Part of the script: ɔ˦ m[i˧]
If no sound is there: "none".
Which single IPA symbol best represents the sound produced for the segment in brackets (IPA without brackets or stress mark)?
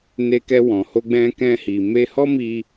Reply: i˧